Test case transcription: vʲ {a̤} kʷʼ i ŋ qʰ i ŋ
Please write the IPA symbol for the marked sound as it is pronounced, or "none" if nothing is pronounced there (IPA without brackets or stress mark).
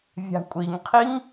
a̤